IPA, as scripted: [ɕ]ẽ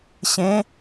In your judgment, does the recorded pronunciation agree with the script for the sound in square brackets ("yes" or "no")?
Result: yes